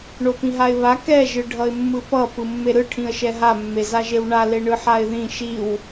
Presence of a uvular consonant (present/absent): absent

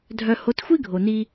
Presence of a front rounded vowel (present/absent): present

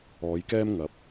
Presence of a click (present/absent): absent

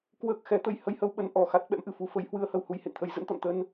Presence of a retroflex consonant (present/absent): absent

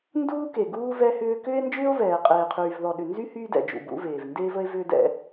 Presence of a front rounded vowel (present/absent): present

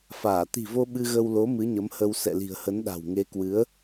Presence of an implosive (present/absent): present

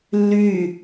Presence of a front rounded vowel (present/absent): present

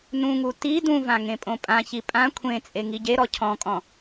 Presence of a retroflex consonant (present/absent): absent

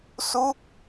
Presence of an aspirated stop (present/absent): absent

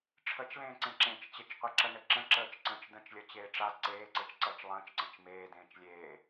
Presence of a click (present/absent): present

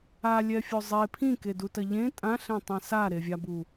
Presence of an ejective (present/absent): present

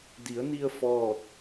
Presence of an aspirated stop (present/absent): absent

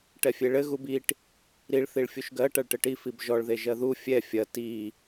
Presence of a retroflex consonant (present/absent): present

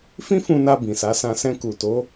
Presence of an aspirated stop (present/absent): absent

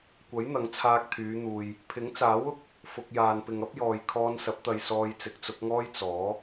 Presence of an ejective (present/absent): absent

